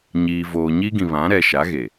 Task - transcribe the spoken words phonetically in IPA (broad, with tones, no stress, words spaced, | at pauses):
ɲiː˨voː˨ɲi˦ɡĩ˨ βã˨˦ɾɛ˨ʃa˨˦ ɣe˨